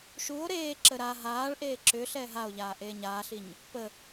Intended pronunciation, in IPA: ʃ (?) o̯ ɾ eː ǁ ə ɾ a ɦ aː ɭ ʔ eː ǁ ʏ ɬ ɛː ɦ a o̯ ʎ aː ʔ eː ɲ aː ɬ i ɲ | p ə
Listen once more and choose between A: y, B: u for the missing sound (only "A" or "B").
B